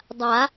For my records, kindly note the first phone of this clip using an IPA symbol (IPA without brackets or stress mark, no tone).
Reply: dˤ